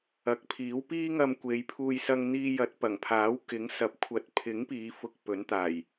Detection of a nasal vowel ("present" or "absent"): absent